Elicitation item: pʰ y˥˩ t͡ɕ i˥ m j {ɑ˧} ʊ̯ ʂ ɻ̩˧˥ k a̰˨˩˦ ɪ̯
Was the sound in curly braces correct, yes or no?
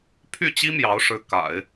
no